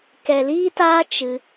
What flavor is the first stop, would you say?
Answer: plain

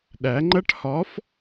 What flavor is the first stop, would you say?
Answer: implosive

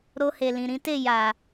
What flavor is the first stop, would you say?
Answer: plain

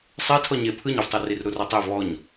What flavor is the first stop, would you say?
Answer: aspirated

